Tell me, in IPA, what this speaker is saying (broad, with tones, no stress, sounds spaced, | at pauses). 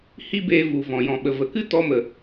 h i˦ b eː˧ v u˨ v ɔ̃˨ j ɔ̃˨ ɓ ə˨ v ə˨˦ k ɨ˦ t ɔ˧ m ə˨